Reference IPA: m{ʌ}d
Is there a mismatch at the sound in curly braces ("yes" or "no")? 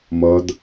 no